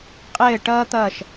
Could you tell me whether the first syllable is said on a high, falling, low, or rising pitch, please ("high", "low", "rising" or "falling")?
falling